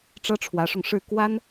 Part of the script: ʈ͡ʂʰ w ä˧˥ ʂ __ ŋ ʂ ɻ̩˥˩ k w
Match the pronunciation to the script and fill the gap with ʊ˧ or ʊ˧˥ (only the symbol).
ʊ˧